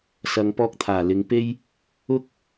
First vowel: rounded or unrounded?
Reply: unrounded